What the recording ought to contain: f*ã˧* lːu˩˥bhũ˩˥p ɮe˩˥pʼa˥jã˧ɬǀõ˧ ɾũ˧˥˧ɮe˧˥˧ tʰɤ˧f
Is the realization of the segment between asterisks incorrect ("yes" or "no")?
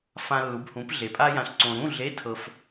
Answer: no